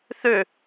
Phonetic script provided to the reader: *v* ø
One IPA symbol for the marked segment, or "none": θ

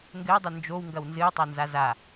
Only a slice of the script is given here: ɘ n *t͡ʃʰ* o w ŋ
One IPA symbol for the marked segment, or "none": d͡ʒ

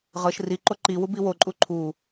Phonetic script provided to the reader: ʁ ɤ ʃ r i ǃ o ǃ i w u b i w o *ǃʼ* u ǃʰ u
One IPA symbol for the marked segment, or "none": ǃʼ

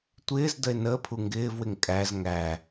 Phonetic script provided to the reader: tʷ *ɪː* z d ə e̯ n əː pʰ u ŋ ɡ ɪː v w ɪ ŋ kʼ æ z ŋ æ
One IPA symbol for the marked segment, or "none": ɪː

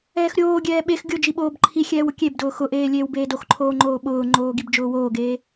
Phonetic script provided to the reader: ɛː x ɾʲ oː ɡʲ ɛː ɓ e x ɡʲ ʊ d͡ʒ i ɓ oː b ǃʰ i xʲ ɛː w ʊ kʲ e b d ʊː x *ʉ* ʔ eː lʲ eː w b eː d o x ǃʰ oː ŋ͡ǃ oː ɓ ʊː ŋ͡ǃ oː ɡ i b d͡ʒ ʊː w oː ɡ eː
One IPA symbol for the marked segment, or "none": ʊ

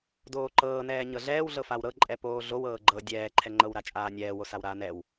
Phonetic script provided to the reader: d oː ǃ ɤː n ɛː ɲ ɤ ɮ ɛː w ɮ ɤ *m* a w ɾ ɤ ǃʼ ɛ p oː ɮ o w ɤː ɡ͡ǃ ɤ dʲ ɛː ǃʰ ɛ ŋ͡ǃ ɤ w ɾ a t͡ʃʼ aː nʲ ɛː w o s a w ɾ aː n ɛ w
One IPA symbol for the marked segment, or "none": f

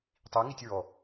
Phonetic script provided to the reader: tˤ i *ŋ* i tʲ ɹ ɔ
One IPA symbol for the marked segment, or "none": ŋ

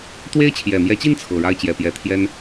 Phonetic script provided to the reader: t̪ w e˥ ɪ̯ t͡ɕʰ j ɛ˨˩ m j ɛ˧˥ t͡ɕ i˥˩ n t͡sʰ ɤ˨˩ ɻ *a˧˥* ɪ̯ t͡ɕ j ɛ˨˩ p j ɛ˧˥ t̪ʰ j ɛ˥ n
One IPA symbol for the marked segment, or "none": a˥˩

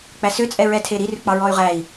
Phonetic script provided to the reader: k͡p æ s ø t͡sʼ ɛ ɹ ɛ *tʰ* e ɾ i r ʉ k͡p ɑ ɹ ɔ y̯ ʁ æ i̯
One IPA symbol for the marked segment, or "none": tʰ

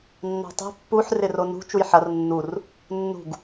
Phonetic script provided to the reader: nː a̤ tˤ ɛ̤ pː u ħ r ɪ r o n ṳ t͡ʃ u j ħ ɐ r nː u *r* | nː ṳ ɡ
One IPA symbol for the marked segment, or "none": r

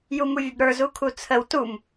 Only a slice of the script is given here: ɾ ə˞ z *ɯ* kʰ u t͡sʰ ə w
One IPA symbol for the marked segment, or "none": u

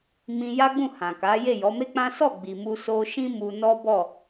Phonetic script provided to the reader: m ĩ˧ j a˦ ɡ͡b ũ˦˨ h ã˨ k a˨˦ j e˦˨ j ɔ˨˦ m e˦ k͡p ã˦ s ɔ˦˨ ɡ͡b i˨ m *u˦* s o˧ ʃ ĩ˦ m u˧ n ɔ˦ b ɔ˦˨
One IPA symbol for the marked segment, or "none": u˧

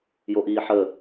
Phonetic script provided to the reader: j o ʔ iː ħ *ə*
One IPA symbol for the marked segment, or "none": ə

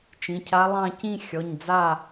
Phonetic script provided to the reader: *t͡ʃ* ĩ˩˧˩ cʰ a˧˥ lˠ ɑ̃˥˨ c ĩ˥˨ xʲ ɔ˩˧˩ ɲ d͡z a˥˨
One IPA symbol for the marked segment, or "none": t͡ʃ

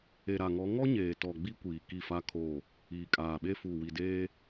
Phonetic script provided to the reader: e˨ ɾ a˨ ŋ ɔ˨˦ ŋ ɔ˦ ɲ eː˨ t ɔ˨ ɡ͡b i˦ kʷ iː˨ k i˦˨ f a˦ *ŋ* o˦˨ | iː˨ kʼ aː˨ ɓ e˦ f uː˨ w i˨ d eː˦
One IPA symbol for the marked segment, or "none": kʰ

